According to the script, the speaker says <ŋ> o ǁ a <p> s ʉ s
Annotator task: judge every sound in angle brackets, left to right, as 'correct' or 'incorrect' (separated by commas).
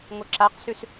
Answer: correct, incorrect